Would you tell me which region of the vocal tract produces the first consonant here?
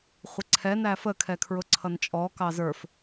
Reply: uvula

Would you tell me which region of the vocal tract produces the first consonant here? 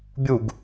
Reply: lips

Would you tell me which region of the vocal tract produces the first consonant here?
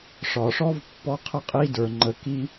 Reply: retroflex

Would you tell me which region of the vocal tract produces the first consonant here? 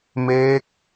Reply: lips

